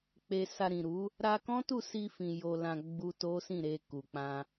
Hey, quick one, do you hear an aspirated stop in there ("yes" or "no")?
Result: no